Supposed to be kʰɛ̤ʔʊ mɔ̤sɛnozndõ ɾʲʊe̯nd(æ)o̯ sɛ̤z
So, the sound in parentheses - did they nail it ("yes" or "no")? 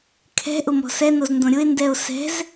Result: no